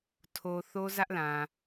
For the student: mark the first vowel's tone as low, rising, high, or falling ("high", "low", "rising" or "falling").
low